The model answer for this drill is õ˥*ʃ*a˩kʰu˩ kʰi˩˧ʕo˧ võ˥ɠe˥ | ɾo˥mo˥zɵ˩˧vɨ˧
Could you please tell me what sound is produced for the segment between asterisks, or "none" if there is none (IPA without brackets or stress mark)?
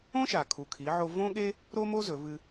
ʃ